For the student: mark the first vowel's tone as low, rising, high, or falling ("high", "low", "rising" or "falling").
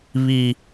low